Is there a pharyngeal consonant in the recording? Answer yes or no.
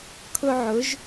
yes